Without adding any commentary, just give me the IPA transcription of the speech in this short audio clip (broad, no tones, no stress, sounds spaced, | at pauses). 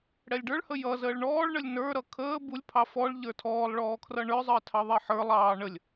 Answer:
ɽ ɛ lʲ ɖ ə˞ ɭ h ə j ʌ z əː ɭ ɳ ɔː ɭ ɳ ə lʲ n ə˞ ɾ ʌ kʰ əː b u lʲ pʰ ɑ f ɔ ɭ ʎ ə˞ tʰ ɔː lˠ ɭ ɔː kʰ r ʌ ɳ ə˞ zˤ əː tʰ ɑ ðˤ ɛ ħ ə˞ lˠ ɑː ɳ ə lʲ